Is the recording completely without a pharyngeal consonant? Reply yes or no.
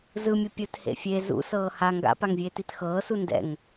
yes